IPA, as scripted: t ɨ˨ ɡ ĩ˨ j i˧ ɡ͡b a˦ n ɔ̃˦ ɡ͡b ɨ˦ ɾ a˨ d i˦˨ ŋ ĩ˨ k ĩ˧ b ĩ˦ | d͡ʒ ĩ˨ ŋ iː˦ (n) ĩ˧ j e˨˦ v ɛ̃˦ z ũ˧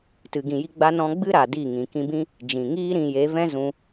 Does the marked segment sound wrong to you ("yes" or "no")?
yes